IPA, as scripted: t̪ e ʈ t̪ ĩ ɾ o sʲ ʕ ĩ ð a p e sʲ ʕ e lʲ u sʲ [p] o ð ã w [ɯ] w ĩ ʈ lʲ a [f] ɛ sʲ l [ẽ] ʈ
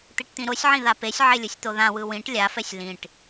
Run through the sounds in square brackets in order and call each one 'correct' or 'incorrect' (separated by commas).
incorrect, correct, correct, incorrect